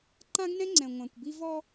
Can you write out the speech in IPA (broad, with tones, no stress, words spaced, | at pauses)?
ǃã˦ɡnɛ̃˦ŋ͡ǀɛ̃˨ ŋʷã˨kʷbi˦ vɔ˦